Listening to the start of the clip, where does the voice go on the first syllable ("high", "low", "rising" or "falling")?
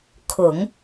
low